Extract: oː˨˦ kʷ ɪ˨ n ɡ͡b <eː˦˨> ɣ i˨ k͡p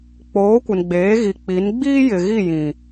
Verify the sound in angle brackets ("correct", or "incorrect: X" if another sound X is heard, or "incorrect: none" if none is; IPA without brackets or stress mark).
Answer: incorrect: eː˨˦